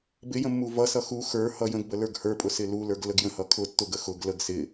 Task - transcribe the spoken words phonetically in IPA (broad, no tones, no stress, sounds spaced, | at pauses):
b ɪ j ə̃ mː u v ʌ s ʌ x u x ə˞ h ʌ j ə̃ ɡ b ə l ə˞ ɡ h ə˞ pʼ ʊ s ɪ l u l ə˞ ɡ l ə ɡ j ə̃ h ʌ kʰ ʊ tː ʊ ɡ ə x ʊ ɡ l ə ɡ s ɪ